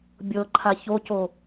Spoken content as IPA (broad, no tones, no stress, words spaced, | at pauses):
bʲɤǃʰa çoco